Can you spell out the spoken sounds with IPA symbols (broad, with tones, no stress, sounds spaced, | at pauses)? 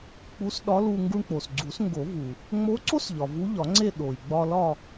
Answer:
k͡p u˧˥ s ɗ ɒ˧˥ l u˧ ŋ ɡ u˧ ɳ k͡p o˩ s ɡ͡ǀ u˨˩˦ s ŋ ɡ o˨˩˦ v u˩ | ŋ͡m o˧˥ ǀ o˥ s ʎ ɒ˩ v u˧˥ ʎ ɒ˨˩˦ ŋ͡ǀ e˥˧ ɗ o˩ j ɡ͡b ɒ˧ l ɒ˥˧